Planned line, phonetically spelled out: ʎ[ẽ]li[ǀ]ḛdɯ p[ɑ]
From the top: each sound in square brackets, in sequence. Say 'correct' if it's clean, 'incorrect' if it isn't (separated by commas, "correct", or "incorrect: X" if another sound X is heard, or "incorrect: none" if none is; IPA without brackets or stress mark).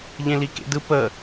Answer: correct, incorrect: k, incorrect: ə